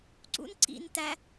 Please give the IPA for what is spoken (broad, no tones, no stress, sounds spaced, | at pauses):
ǀ ṵ n ǀ ḭ n t æ